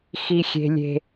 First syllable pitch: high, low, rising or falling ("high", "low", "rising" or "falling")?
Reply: high